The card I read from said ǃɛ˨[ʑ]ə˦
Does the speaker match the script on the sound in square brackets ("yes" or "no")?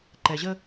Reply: yes